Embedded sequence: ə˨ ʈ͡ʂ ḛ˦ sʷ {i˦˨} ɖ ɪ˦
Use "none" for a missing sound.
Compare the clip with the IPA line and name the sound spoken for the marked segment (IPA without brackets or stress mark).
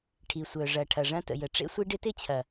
i˦